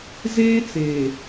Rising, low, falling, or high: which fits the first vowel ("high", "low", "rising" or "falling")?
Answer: high